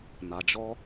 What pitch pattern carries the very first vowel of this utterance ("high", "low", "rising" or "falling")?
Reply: low